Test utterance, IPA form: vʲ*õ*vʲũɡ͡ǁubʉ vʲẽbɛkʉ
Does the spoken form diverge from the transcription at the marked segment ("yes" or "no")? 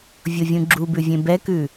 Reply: yes